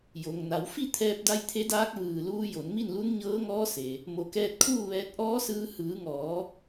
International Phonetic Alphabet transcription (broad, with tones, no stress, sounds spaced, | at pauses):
j o˩ ŋ n a˩˧ w f i˥˨ t̪ʰ ɛː˧ p̚ d a˧ j t̪ʰ e˧˥ d aː˧˥ k̚ ʋ ɯː˧˩ l uː˧ j o˩˧ n m i˥˨ n l u˧˥ n ɲ ɤː˧˥ ŋ ɔː˧˥ s e˩ | m o˩˧ k ɛː˧ t̚ kʰ uː˥˨ ʋ ɛː˧ t̚ ʔ ɔː˧˥ s ɯː˧ h ɯː˩˧ ŋ ɔː˩˧